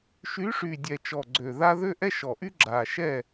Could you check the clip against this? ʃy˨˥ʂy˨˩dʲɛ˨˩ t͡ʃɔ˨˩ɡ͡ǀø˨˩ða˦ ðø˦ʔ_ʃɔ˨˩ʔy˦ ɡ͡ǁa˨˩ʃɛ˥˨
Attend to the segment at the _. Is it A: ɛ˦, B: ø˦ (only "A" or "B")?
A